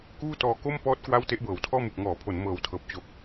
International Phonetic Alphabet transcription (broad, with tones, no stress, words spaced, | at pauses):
kuː˥˩tɔː˧ ko˥˩mpɔː˦˥t̚ kwa˥˩w te˦˥ʔbɤː˩˦wtʰɔː˥˩ mɯ˨˩k̚ŋɔː˩˦pʰo˩˦n mɤː˨˩wtʰɤː˨˩p̚ t͡ɕo˨˩k̚